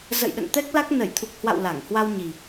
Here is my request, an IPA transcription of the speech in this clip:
z ə̰˧˨ j ɗ ə̰˧˨ n t̪ ɛ˦˥ k̚ l a˦˥ k̚ n ə˧˩ j t̪ʰ u˨˩ k̚ h w a̰˧˨ w l a˧˩ ŋ h w a˧ w ɲ i˨˩

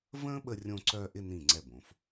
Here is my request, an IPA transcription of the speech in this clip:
v ə̃ː˥ ɓ ə˧ rʲ õ˧ ǀ œː˧ ʔ ɪ˥˧ n ĩ˧˩ ŋ͡ǀ ɛ˧˩ b õ˩˧ f

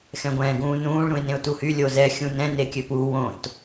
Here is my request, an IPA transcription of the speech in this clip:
x ɛ̃ ɡʷ ɛ̃ː ɡ ũː n ũː ɭ ɾ ũ ɪ̯ n ẽ ʊ̯ t u h y lʲ o z ɛ xʲ ũ n ɛ̃ n e kʲ ø p u w õ t

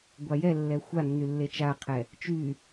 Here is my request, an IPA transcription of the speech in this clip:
ɡʷ a j ɛ lː ɛ xʷ a nː y lː e t͡ʃ a qʰ ɛ | t͡ʃ y

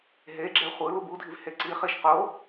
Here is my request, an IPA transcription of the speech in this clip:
ɦ e ɡ͡ǁ ɛ χʷ ɯ l u b u dʱ i v h e ǀ i χ i ʃ q o

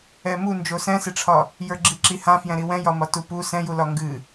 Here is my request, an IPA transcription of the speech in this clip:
ɛ m u n d͡ʒ o s ɛ̃ s e ʈ͡ʂʰ ɒ | j ə˞ ɡ͡ǁ i ǁ i h ã f j ɛ̃ ɾ i w ɛ̃ j ɒ m ɒ t u p u s ɛ̃ j u l ɒ ŋ ɡ ɨ

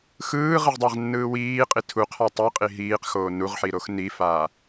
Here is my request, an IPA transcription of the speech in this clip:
x ɯː ʁ ɯ ʁ dˤ a ʁ nː ɯː w iː qʼ i tʰ u qʰ a tˤ ɯ qʼ i ɦ iː q x oː n u ʁ ħ i ɾ o x n i f aː

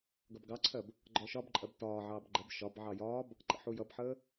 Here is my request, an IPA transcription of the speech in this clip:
ɡ ʌ b ɡ ɑ ǀʰ ɜ b | ɡ͡ǃ ɔ ʃ ɒ b ǃʼ ɜ b t ɒː ʕ ɑː b ɡ͡ǃ ə b ʃ ɒ b ʕ ɑ j ɒː b | ǃ ə̰ ħ u j ʌ b ħ əː

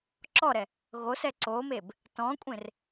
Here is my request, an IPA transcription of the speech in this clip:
ǁ ɔ ɾ ɛ | ɣ o s ɛ ǀ o m e b | t ɔ̃ kʷʼ ẽ r

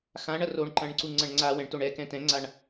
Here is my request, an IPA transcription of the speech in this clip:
x ã ɳ ɐ r o ɳ ǃ ɐ̃ ɳ ǀ u ŋ͡ǀ ɐ̃ ɳ ŋ͡ǀ a w ɛ̃ ɳ t o ɳ ɛ k ɛ̃ t ɛ̃ ŋ͡ǀ a ɳ

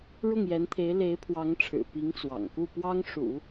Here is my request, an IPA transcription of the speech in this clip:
ɻ ʊ˥˩ ŋ j ɛ˧˥ n t̪ʰ e˧˥ ɪ̯ l e˧˥ ɪ̯ pʰ w ɑ˧˥ ŋ ʈ͡ʂʰ ɻ̩˨˩ p i˧˥ ŋ t͡s w ɑ̰˨˩ ŋ k u˥˩ p w ɑ˥ ŋ ʂ ṵ˨˩˦

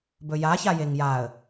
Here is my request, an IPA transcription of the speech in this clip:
b ɵ j a ç a j e ŋ j a ə̯

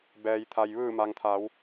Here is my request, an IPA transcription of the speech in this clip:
b ɛː˩ j t̪ʰ a˩ j ʋ ɯː˧˩ m a˩ ŋ t̪ʰ a˩˧ w

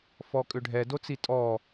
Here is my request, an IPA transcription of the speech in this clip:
f ɔ kʼ ʏ ɖʱ ɛ d o t͡s i tʼ ɔ

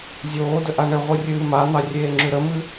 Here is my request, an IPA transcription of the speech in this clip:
zʲ oː d ə ʔ a ɳ ɘ ʁʷ ɨ rʲ ɨː m a n̪ ɑ rʲ eː ŋ͡ǁ ʉ ɾ ə m ɨ

